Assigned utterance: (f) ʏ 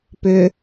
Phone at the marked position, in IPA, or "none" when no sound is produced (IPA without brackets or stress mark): p